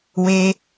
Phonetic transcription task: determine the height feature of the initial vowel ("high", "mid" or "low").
mid